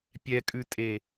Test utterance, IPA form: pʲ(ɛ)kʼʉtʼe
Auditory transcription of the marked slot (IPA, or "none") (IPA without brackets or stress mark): ɛ